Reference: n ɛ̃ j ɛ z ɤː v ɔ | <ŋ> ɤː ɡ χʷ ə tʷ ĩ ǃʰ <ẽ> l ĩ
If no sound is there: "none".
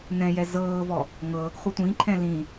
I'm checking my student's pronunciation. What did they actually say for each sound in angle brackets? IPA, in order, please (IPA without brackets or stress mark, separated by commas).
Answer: ŋ, ɛ̃